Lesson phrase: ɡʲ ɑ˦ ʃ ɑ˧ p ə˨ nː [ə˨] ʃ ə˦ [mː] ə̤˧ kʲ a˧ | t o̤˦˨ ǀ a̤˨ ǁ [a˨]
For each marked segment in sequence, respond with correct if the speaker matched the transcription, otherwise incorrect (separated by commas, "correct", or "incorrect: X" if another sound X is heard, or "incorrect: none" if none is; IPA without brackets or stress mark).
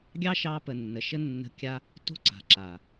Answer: correct, incorrect: nː, correct